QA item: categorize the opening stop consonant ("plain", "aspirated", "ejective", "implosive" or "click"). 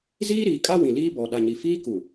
ejective